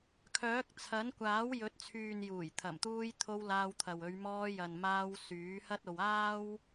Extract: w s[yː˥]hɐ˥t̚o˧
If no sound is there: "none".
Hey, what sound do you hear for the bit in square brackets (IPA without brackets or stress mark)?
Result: yː˨˥